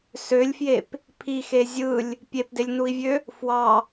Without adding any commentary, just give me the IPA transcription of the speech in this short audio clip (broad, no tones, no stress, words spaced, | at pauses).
sølʲfjep | pʰixe zʲɯlʲ | pʲepdelʲnui̯vʲø | fwɑ